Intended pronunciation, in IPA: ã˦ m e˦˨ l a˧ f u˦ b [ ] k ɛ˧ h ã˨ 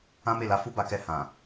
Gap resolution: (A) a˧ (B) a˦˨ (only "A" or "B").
A